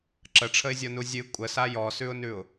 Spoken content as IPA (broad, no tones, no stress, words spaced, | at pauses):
ǁəʈ͡ʂʰəɪ̯zʲɔnu zʲɨ kʷʼəsa jɔsʉʊ̯nʉʊ̯